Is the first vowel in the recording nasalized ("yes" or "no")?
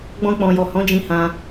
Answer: yes